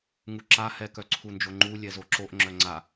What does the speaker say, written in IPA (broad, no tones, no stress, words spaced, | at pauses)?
ŋuǁa hɛ kœǀʰund͡ʒoŋ͡ǃu lʲɛzoǁoʔ ŋ͡ǁœŋ͡ǀa